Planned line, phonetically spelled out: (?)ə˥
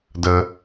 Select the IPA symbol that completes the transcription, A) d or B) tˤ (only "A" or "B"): A